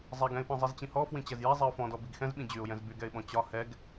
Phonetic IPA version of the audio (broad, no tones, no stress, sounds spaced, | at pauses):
zˤ ɛ ɡ ɛ̃ ɪ̯ p ɛ̃ zˤ i z t͡ɕ ĩ h ɔ f w ĩ t͡ɕ ɛ z j ɛ zˤ i ʊ̯ f ɔ̃ d ɔ b i ɡ x ɛ̃ z ɓ ĩ d͡ʑ y ʊ̯ j ɛ̃ z b y ɡ ɛ ɪ̯ ɓ ɔ̃ t͡ɕ ɒ h ɛ ɡ